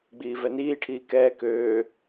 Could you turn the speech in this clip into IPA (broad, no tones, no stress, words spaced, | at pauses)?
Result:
ɡ͡biːvɛniːʈʰiː kɛː køː